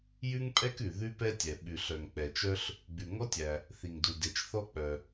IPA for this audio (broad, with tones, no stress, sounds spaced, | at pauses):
j ʉ˥ ŋ pʼ ɛ˥ k ʉ˩ ð ʉ˥ p ɛ˥ tʲ ɛ˩ ɓ ʉ˩ ɬ œ˩ ŋ k͡p ɛ˩ t͡ʃ œ˥ ɬ | ɡ͡b ʉ˩ ŋ ɔ˥ tʲ æ˩ | θ i˩ ŋ d u˩ d e˩ t͡ʃ θ ɔ˥ k͡p œ˩